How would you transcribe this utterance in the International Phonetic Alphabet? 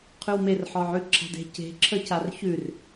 qʰ ʉ w m e r ħ ɔ ʕ ʉ ǁʰ a̤ d e̤ c e̤ ǁʰ ə c a r ç ʉ r

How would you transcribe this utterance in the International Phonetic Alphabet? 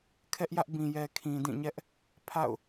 kʰ ɛ˦ ʔ j ä˦ ʔ b ĩ˨ j ɛ˨ kʰ ĩ˨ d ĩ˦˨ ɲ ɛ˦ ʔ | pʰ a̰˦˨ ʊ̯

